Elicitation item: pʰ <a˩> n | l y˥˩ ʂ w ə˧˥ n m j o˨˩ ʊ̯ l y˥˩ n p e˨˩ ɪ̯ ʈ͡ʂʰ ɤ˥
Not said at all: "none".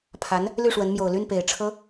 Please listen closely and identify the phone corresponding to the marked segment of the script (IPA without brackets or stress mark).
a˧˥